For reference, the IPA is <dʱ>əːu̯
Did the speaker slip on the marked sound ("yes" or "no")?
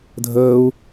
no